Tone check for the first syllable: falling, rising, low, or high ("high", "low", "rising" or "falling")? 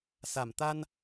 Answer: low